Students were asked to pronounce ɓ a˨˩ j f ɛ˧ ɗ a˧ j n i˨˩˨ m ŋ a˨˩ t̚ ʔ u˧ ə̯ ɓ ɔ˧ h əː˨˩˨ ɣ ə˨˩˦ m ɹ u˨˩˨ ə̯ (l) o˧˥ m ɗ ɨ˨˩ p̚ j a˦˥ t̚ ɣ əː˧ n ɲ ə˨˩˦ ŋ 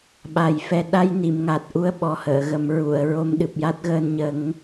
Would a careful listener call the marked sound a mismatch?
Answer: yes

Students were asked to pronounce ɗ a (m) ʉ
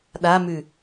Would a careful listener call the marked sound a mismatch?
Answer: no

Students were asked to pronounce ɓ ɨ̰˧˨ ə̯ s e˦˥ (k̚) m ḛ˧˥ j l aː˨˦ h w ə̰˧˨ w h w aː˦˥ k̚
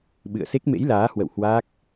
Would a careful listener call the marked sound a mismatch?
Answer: no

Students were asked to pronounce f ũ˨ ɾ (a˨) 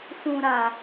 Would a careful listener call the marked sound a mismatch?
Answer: no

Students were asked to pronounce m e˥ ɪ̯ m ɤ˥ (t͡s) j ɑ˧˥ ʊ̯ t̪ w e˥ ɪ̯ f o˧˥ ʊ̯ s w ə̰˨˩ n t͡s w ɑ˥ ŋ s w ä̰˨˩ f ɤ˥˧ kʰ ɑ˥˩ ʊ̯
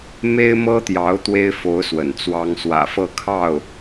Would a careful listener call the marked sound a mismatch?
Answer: yes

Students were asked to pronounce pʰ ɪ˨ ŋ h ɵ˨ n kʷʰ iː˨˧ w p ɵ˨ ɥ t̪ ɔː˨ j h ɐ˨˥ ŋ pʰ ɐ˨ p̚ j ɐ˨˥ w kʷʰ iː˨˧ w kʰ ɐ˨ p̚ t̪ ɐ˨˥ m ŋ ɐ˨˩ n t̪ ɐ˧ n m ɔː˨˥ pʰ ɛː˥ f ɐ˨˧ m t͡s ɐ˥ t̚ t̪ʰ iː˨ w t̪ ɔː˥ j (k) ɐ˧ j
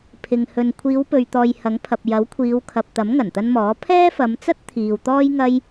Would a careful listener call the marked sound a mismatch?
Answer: yes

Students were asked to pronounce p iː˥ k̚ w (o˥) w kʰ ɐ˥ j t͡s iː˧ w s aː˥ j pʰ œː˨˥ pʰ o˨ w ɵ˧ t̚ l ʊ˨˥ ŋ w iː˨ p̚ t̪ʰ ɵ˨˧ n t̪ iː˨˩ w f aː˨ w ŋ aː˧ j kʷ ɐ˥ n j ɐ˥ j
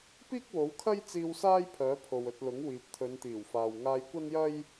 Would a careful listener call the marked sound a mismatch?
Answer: yes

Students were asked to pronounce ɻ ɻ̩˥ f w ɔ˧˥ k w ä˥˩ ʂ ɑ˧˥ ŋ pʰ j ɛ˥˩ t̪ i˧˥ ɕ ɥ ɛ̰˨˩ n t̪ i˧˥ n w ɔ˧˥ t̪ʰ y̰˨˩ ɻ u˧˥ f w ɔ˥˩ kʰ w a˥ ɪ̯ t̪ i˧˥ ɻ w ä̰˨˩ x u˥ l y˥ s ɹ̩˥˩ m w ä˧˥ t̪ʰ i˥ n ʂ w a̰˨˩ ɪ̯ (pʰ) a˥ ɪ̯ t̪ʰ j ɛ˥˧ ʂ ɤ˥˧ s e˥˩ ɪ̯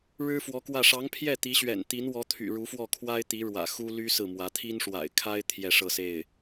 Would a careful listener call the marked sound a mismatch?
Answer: yes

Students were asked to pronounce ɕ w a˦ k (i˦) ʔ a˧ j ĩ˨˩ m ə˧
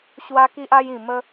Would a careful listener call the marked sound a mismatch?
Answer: no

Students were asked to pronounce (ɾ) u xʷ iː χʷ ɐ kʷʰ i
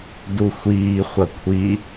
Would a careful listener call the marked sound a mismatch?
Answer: yes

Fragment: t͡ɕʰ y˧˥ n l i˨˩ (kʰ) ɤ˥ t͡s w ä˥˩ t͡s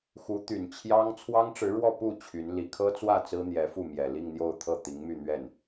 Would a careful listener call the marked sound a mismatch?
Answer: no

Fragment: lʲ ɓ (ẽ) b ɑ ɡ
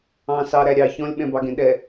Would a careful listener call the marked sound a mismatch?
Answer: yes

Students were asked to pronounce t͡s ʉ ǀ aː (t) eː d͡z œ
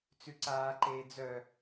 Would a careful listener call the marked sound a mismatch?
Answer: yes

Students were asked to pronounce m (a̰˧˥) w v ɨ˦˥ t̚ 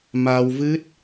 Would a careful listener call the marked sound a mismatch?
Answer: yes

